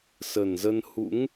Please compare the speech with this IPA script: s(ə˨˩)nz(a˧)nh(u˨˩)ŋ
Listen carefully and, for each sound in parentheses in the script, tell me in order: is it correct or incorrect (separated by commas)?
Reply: correct, incorrect, incorrect